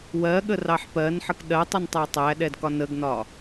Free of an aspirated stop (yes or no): yes